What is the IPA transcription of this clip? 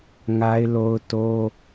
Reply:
ŋa˦ɪ̯lo˦ʊ̯ to˦

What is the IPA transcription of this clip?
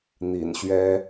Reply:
n̪ḭ˨˩nɕɥɛ˦

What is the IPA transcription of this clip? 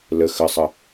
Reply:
lə xə sˤə

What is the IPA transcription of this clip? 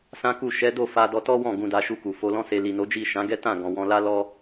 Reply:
sã˦ku˦˨ ʃɛ˨˦do˦˨ fa˧ dɔ˧ tɔ˦wɔ̃˦˨ ɡũ˧da˧ʃu˧ku˨ fo˧lɔ̃˦se˧ li˨no˨˦d͡ʒi˦˨ ʃã˨˦ɡɛ˦tã˦˨ ɡɔ̃˨wɔ̃˧la˦ lɔ˦

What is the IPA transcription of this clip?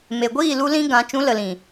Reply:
me˨ɡʷiː˦˨lu˧ lĩ˦ɡã˨˦ t͡ʃũ˨˦lə˨lĩ˨

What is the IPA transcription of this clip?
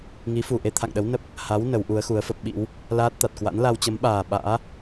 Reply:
ŋi˨˦fu˨˩ ʔe˧t̪ʰa̰˧˨ŋɗə˨˦w nə˦˥p̚ | ha˨˦w nə˨˦wʔu˨˦ə̯xu˨˦ə̯fə˦˥p̚ ɓḭ˧˥w | laː˦˥t̚t̪a˨˩t̚kwa̰˧˥n la˧wt͡ɕə˨˦mɓaː˨˩ ɓa̰ː˧˥

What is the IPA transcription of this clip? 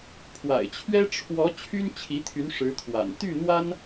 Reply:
pʰwa̰˨˩ɪ̯t͡ɕʰɥɛ˥ ʈ͡ʂʰwɔ˧˥ t͡ɕʰy˥nt͡ɕʰi˧˥t̪ʰy˧˥n ʂɻ̩˧˥t̪ʰwa̰˨˩n t̪y˥˩n̪wa˥n

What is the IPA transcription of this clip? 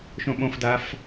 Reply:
ʃõɓõfdaf

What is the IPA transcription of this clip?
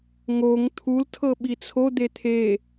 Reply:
ŋoŋ t̪ʰultʰɤɓi t͡sʰod̪e t̪ʰe

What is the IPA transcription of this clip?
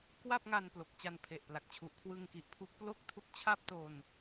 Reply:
kwa˥˩p̚ŋa˧n plo˨˩k̚t͡ɕa˧npʰe˨˩ʔ pla˨˩k̚t͡ɕʰu˨˩ʔkʰwɯ˧ŋ ki˨˩ʔpʰu˦˥k̚plo˥˩k̚ tʰu˦˥k̚t͡ɕʰa˥˩p̚to˧n

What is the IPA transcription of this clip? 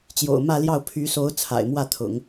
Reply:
t͡ɕjo̰˨˩ʊ̯mä˥˧ljɑ˥˩ʊ̯ pʰy˧˥so˧˥ʊ̯ t͡sʰa̰˨˩ɪ̯mwä˥˩t̪ʰʊ̰˨˩˦ŋ

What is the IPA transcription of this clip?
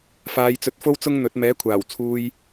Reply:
faː˨˧jt͡sɵ˧t̚fo˥w t͡sʊ˥ŋn̪ɵ˨˥t̚ mɛː˨˥kʷʰaː˨˩w t͡sʰuː˧j

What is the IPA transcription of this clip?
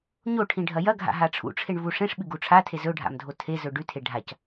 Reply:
ɲoʈʰĩ ɖʱɐjɐɡʱa̰ ɦaʈ͡ʂʰṵʈ͡ʂʰeɳ vuʂẽʂɓɨ ɡuʈ͡ʂʰatʰe zɵɖʱa̰m dʱotʰezɵ ɖʉtʰe ɖʱac

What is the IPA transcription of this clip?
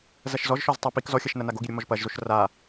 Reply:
zɐʃzɔʒʃɔz tˤapik zɔxʲɐʃnɐna ɡoɡiɾʲo mɔʒpɐʒzoʃ ra

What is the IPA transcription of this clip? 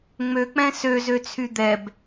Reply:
ŋ͡møk͡pɛ̃ søzøt͡sʰy d̪ɛb

